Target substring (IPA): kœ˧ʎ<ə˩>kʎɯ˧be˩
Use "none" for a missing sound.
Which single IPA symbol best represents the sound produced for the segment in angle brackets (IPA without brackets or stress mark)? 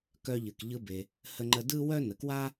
ɨ˩